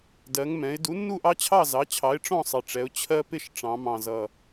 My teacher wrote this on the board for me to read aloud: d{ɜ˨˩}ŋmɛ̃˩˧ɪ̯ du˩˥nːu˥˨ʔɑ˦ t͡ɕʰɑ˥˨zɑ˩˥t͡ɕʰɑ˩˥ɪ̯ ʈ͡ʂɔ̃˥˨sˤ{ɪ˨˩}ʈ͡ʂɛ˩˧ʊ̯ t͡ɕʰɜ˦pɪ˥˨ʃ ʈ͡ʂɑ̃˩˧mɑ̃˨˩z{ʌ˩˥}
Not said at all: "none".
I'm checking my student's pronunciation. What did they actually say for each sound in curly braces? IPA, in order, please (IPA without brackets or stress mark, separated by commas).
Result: ɜ˩˧, ɪ˨˩, ʌ˨˩